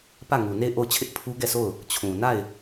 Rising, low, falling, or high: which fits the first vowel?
falling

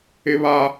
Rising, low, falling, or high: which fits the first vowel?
high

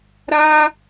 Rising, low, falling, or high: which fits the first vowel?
high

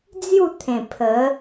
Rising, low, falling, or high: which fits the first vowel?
falling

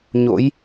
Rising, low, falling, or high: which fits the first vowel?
rising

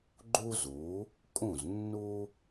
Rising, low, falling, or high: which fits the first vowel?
high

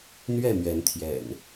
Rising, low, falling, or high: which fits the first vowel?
falling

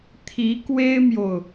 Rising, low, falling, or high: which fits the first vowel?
rising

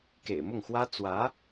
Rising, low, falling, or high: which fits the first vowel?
low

